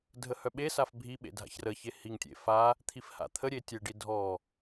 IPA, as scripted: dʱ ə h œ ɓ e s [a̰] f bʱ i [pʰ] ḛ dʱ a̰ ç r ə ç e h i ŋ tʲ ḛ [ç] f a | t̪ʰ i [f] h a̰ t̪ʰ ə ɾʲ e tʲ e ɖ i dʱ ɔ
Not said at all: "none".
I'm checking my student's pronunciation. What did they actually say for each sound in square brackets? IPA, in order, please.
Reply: a, ɓ, none, f

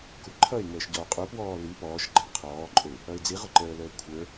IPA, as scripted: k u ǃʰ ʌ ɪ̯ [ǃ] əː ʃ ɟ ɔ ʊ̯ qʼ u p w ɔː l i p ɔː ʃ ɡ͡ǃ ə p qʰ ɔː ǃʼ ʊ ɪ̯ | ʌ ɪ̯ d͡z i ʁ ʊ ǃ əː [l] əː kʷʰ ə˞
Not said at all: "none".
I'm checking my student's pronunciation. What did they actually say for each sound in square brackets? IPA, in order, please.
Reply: ŋ, l

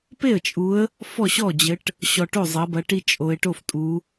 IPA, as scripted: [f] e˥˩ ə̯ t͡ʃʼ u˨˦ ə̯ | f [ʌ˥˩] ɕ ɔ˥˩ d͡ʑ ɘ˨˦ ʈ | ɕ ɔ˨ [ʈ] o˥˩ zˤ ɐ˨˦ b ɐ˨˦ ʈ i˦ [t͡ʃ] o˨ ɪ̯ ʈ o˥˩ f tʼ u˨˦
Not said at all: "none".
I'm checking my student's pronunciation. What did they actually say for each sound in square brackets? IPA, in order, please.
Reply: p, ɔ˥˩, ʈ, t͡ʃʼ

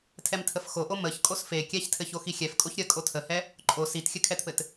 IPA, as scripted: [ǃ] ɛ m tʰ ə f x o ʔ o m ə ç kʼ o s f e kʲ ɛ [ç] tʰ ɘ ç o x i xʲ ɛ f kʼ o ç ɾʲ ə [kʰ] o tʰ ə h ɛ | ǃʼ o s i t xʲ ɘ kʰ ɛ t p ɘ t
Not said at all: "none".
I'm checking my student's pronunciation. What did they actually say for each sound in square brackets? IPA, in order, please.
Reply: tʰ, ç, kʼ

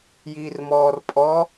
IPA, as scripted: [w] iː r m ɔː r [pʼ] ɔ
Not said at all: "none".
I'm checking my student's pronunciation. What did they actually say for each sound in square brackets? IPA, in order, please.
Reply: j, pʼ

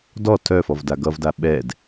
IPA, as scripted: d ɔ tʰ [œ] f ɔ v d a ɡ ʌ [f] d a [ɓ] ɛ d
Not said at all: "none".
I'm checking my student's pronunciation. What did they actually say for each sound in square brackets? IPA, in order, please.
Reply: œ, v, ɓ

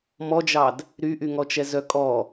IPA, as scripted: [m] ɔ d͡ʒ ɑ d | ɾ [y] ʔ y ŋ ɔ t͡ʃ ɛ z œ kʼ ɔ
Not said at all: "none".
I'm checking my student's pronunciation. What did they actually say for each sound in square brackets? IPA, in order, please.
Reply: m, y

